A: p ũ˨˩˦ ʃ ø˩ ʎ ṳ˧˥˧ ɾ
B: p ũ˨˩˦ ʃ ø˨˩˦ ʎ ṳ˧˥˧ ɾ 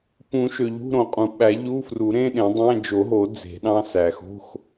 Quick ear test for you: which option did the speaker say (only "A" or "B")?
A